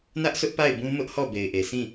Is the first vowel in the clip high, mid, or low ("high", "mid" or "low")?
low